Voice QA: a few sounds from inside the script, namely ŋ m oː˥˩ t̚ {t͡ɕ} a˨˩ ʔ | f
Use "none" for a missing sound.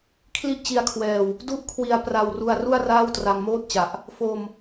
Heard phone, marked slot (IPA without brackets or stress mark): t͡ɕ